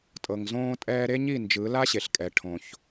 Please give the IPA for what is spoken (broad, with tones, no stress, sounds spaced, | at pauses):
tʼ ɤ˨ ŋ z õː˧ tʼ ɛː˧ ɾ e˦ ɲ i˦˨ n d͡ʒ ɯ˨˦ l a˦ ɕ e˨ ɬ kʼ ɛ˨ ʈʰ õ˨ ç